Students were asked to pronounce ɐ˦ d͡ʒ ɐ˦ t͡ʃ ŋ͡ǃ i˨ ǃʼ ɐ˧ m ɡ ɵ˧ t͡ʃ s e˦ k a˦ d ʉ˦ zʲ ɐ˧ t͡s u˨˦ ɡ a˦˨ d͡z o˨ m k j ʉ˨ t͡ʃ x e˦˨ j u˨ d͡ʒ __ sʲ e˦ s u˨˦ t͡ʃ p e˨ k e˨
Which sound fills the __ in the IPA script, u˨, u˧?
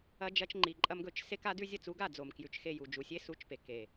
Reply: u˨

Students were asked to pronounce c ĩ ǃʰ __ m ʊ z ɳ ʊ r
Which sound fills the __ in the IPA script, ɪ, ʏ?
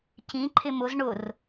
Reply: ɪ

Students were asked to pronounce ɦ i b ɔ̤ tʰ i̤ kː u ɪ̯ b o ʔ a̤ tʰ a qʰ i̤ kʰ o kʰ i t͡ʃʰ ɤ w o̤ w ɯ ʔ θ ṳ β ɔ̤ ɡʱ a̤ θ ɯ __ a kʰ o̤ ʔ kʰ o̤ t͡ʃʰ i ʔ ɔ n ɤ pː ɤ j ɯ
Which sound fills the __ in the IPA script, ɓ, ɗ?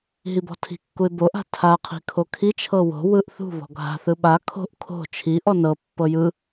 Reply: ɓ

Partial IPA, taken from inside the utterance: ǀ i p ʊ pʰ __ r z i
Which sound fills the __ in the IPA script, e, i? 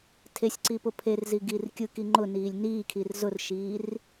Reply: e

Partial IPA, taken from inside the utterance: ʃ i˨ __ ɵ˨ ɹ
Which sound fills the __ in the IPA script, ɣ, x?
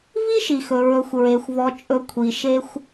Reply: x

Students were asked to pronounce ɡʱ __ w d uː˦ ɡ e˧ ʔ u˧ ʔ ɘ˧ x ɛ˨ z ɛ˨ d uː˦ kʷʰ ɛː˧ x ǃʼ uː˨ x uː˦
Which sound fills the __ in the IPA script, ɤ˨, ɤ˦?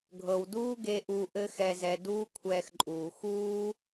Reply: ɤ˨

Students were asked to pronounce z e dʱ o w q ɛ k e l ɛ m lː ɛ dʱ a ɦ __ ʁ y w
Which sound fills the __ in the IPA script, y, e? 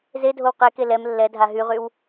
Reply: y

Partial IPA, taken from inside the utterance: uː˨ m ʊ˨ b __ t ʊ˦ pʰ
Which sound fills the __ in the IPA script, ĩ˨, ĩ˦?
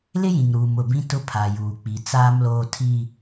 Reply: ĩ˦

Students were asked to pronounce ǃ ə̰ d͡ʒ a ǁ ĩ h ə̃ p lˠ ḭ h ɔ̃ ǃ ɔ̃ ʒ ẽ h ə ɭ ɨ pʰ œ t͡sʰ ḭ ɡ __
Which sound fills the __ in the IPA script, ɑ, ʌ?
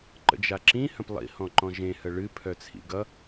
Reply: ʌ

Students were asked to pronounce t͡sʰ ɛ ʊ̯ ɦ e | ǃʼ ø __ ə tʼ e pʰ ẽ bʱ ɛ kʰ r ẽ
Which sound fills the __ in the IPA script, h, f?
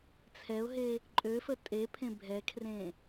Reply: f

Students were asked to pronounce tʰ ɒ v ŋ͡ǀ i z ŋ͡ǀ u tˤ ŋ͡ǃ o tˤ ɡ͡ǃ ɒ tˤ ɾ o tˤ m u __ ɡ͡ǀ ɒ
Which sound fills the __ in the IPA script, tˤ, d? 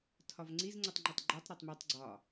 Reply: tˤ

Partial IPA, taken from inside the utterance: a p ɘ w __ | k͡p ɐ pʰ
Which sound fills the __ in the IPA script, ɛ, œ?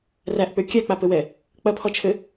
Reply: ɛ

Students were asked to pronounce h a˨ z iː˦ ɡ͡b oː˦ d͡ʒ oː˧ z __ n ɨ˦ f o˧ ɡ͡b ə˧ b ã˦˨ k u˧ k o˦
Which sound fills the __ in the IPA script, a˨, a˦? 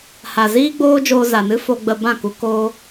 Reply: a˨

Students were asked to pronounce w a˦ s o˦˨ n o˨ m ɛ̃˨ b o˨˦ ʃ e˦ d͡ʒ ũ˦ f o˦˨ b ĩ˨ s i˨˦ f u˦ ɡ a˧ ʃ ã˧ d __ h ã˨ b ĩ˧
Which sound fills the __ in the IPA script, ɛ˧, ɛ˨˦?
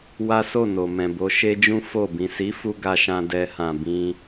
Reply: ɛ˧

